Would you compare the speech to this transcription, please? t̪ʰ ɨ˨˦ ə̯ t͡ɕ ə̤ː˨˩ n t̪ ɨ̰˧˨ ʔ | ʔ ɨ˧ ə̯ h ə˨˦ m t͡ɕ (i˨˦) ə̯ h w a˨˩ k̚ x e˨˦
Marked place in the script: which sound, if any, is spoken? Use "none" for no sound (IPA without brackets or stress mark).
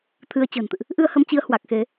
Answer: i˨˦